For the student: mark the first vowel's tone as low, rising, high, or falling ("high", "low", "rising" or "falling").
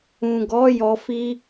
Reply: low